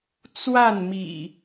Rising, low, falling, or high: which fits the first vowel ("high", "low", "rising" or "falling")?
falling